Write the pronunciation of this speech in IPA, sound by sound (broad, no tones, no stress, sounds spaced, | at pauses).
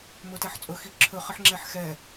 m ɵ t ɛ ħ t͡sʼ ɵ x i ǁʰ ɵ χ ə ħ ŋ͡ǁ ɛ ħ x ɛ